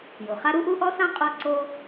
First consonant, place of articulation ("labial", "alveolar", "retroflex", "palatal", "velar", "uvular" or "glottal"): palatal